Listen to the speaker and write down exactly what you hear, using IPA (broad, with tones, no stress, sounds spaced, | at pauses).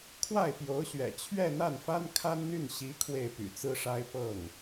kʰ w a˥˩ ɪ̯ p j o˧˥ ʊ̯ ɕ ɥ ɛ̰˨˩ t͡ɕʰ ɥ ɛ˥˧ n̪ a˥˩ n f a˥ n kʰ a˥ n n̪ y˥˩ n ɕ i˧˥ kʰ w e˥˩ ɪ̯ p y̰˨˩ t͡s ɹ̩˥ ʂ a˥ ɪ̯ p ɤ˥˩ ŋ